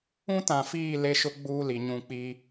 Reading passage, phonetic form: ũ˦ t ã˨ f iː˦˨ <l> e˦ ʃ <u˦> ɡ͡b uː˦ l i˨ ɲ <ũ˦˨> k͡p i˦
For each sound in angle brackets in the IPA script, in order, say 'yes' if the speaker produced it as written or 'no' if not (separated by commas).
yes, no, yes